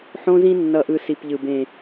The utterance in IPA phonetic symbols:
ħ õ˦ z ĩ˦ nː ʌ˨ ʔ ɯ˨ s i˨ p ʎ ɯ˨ b ẽ˨

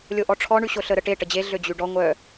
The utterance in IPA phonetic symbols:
lʲ o ʔ ɔ ʈ͡ʂʰ ɔ ɳ y ɕ o ɬ ə ɾ ə ʈ e ʈ ə d͡ʑ e ɮ ø d͡ʑ y ɖ ɔ ŋʷ œ

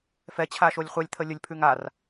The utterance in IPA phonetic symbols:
f ɛ t͡ɕʰ a ʃ o lʲ χʷ ɛ lʲ t̪ʰ ə lʲ ə lʲ pʰ ʉ ŋ a r

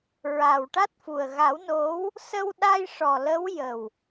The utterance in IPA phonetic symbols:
ɹ a˨˩ w ʈ a˦˥ t̚ f u˨˩ ə̯ ɣ a˨˩˦ w n o˧˥ w | s ə˧ w ɗ a˧ j ʂ ɔ˨˩ l ə˧˥ w j ə˨˩ w

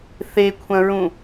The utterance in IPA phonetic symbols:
θ e kʷʰ ɐ̃ ɹ ũ

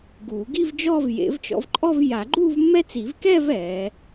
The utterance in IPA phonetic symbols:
ɡ uː˨˩˦ ɡ i˥˧ v d͡ʒ ɔː˥˧ v j ḛ˨˩˦ v t͡ʃ ɔ̰˨˦ v ǃʼ ɔ˥˧ v j a˨˩˦ ɡ͡ǃ uː˥˧ v mː ɛ˦˥ t͡s i˨˩˦ v k ɛː˥˧ v ɛː˨˦

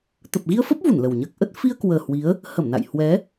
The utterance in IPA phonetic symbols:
t̪ ə˨˩ p̚ ɣ i˧ ə̯ f əː˦˥ p̚ v u˧˩ n l ə˨˩ w ɲ əː˦˥ k̚ ʔ ə˦˥ t̚ f i˧ ə̯ k w əː˨˩ h w i˨˦ ə̯ | h ə˧˩ m n a̰˧˨ j h w ɛ˨˦

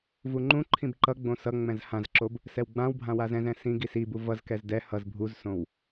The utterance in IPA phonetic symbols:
v u ŋ͡ǃ ũ ǃʰ ĩ b ǃ ʌ ɡ͡b õ s ʌ ŋ͡m ɛ̃ z h ã z ǁ o b | s ɛ w ɡ͡b ã w bʱ ã w a z ɛ̃ z ɛ̃ s ĩ ɡ i s i b u v ʌ z k ɛ z d ɛ h ʌ z bʱ u z s õ w

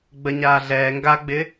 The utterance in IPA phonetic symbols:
ɡ͡b ə ɲ aː ɮ ɛː ŋ ɡ a ɡ͡b ɪ

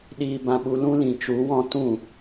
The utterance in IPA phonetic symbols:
ɗ iː˧ b ã˧ ɓ u˧ l ũ˧ l ĩ˨ t͡ʃ u˨˦ w ɔ̃˧ t ũ˦˨

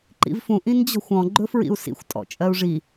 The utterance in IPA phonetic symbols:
ǃ ḭ v f ũ ʔ ĩ n d͡ʑ ɔ̤ xʷ ɔ̃ ɡ͡ǃ ɵ f ɹ ḭ u̯ s ḭ xʷ tʼ ɔ̰ t͡ʃʼ ɜ u̯ ʐ i

